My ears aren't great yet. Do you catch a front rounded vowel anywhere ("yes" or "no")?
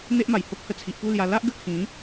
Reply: no